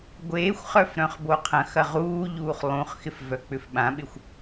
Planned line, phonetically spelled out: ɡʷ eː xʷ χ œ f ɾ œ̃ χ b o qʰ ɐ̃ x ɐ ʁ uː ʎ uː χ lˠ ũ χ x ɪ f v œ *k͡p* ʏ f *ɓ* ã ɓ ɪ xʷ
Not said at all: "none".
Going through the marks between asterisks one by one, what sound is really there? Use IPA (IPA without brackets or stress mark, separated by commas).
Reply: k͡p, ɓ